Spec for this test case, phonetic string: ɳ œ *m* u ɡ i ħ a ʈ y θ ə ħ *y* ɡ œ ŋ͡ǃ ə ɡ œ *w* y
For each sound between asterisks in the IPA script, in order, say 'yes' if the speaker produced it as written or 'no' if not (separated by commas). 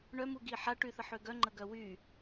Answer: yes, no, yes